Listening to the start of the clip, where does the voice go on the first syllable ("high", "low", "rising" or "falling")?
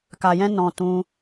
low